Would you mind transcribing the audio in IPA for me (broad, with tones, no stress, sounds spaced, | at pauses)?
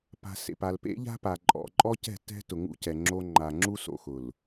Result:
p a̤˨ s ḛ˨ p a˨ l p ḛ˦ ʎ a̤˦ p a˨ ǃʼ ɔ̰˨ ǃʼ ɔ˦ c ɛ̤˦˨ t ɛ̤˦ t ʊ˨ ŋ ṵ˦ c ɛ˨ ŋ͡ǁ o˦ ŋ͡ǃ a˨ ŋ͡ǁ u˦ s o̰˨ x ʊ˨ l